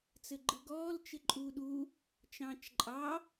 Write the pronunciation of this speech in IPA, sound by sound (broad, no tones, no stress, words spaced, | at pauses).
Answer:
t͡sɘɡ͡ǃɯɡɔːl t͡ʃɪǃʼuːɗu | t͡ʃɑ̃ːt͡ʃǃʼɑ